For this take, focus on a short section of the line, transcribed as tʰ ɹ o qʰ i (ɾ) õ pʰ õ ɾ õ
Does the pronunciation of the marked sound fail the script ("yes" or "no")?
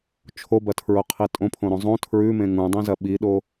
yes